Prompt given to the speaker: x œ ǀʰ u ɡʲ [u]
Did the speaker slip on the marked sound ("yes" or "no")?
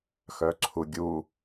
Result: no